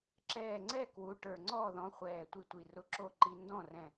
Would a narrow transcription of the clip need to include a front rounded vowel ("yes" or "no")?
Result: no